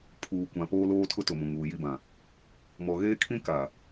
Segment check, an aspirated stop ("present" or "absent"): present